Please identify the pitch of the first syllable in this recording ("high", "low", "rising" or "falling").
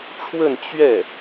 falling